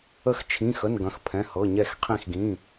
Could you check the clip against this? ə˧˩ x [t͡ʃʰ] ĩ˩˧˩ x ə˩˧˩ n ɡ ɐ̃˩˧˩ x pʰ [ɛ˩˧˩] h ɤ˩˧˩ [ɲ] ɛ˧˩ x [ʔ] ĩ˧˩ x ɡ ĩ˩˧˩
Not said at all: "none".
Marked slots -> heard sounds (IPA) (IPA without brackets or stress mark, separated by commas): t͡ʃʰ, ɛ̃˩˧˩, ɲ, qʰ